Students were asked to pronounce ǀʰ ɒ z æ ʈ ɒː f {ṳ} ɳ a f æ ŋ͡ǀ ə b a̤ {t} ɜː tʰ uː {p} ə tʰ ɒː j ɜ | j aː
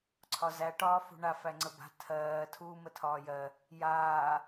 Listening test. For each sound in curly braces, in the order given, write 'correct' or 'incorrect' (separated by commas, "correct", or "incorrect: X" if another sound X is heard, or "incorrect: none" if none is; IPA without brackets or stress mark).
correct, incorrect: tʰ, incorrect: m